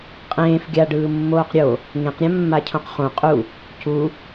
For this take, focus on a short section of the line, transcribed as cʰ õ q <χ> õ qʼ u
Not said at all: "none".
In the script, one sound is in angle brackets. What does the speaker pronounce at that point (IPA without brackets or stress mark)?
χ